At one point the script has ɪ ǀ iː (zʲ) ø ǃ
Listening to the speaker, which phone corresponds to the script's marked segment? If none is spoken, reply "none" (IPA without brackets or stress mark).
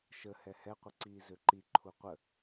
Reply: z